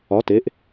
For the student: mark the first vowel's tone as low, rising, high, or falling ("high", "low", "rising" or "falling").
rising